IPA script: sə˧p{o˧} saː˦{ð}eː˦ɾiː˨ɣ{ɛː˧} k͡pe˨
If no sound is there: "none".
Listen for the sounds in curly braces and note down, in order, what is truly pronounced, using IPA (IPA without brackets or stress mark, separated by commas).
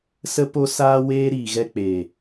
o˧, w, ɛ˧